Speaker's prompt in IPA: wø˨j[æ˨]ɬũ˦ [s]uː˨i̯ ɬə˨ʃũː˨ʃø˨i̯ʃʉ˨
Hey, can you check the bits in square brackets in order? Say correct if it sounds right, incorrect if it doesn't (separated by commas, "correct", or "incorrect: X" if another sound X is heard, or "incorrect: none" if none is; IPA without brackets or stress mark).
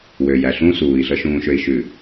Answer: correct, correct